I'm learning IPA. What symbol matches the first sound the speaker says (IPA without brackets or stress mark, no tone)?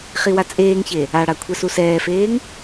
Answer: χ